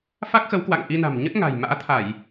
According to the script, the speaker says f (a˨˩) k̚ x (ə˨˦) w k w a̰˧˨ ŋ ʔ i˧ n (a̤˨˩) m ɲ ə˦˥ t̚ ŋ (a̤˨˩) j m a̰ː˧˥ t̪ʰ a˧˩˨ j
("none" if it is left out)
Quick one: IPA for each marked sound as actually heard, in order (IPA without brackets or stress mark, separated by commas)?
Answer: a˦˥, ə˨˦, a̤˨˩, a̤˨˩